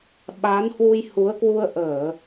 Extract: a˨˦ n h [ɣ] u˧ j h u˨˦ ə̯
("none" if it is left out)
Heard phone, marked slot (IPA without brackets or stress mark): w